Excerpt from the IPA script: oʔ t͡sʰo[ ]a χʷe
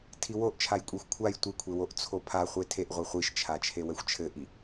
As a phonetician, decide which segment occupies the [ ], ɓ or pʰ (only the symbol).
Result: pʰ